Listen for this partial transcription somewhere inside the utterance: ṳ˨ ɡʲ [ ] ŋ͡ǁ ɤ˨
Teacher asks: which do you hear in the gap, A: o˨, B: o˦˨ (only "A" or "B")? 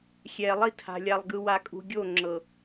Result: B